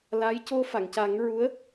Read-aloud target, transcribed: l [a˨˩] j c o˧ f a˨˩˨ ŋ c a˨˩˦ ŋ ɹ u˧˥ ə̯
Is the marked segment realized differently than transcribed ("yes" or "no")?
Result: yes